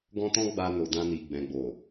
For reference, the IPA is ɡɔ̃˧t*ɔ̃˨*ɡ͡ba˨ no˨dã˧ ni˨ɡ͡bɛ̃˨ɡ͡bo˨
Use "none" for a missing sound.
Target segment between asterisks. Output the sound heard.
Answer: ɔ̃˧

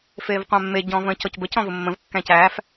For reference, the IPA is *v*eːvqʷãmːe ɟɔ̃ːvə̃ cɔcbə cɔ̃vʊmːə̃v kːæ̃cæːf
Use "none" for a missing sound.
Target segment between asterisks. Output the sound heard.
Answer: f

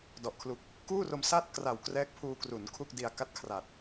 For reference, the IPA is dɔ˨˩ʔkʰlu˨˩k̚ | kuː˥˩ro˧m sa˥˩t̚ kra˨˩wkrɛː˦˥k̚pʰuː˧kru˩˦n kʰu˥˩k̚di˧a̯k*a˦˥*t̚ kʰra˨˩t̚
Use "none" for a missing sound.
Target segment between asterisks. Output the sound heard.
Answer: a˥˩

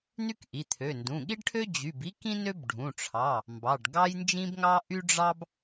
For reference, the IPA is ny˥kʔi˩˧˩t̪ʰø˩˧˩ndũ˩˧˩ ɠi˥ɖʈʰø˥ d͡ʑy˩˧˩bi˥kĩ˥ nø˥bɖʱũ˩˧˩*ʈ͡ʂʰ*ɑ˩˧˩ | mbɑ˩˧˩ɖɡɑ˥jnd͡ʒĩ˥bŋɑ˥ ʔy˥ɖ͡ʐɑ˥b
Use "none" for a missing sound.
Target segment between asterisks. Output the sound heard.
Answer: ʈ͡ʂʰ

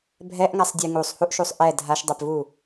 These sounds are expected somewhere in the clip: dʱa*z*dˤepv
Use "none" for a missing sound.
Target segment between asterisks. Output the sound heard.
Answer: ʃ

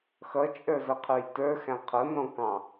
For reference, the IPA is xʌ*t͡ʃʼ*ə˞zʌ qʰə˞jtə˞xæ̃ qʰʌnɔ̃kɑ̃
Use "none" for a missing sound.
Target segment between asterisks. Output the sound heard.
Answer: t͡ʃʼ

